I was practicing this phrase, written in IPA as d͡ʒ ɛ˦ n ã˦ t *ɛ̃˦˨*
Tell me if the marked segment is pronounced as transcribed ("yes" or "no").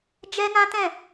yes